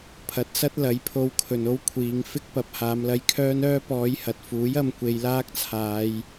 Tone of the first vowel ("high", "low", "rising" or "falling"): rising